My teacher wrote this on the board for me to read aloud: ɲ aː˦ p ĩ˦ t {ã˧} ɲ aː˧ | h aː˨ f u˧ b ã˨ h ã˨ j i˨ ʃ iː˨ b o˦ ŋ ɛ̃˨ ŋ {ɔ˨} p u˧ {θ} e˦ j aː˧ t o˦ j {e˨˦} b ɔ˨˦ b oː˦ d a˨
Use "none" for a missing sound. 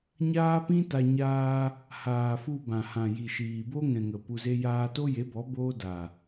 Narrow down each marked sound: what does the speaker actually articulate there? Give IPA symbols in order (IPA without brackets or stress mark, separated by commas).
a˧, ə˨, z, e˨˦